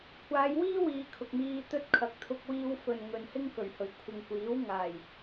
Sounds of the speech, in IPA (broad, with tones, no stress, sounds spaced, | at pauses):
kʷʰ aː˨˧ j w iː˥ w iː˨˧ kʰ ʊ˨ k̚ m iː˧ t̪ ɵ˧ t̚ kʰ ɐ˨ k̚ t̪ʰ ʊ˧ k̚ w iː˧ w f ɵ˨ n ŋ ɵ˨ n h ɪ˥ ŋ k ɵ˨˩ ɥ h ɵ˨˩ ɥ kʷʰ ɪ˨ ŋ kʷ iː˨˥ w ŋ aː˨˩ j